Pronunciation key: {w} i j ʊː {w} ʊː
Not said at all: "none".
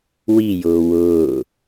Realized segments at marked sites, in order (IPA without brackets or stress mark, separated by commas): w, w